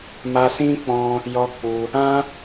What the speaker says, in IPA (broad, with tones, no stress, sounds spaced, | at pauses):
m a˦ s ĩ˦ k͡p ɔ̃˧ | j ɔ˦ k͡p u˧ | ã˦